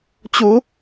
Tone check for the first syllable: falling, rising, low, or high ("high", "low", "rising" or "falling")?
rising